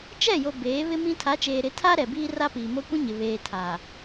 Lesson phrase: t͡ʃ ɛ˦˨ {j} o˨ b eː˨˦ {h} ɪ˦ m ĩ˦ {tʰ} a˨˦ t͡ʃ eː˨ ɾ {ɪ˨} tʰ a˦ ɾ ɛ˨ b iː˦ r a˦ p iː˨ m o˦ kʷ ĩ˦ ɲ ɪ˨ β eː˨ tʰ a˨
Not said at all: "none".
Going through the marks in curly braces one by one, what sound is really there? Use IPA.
j, β, tʰ, ɪ˨˦

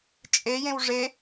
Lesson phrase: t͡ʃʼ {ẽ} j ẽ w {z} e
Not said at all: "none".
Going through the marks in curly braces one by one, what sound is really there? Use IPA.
e, ʐ

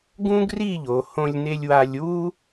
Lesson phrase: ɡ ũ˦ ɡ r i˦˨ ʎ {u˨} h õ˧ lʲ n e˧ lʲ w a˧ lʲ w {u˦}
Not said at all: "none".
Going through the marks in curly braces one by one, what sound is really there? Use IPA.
o˨, u˦

